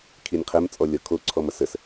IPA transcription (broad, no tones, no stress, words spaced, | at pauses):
kʰinʲqʰɛm t͡sʼɔlʲɔkʰo ǀʰɔmʌsəs